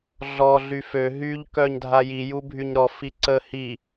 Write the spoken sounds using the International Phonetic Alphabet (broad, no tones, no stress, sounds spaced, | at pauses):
ɮ ɔ ɮ y f ø ɦ y ʎ k œ ɲ dʱ a j i j u bʱ y ɲ ɾ ɔ f i ǀ ə h i